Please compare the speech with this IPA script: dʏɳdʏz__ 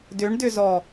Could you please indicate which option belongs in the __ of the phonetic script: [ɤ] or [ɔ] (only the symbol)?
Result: ɔ